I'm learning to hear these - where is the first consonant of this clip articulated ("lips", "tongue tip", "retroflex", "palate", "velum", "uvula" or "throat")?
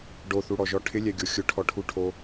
retroflex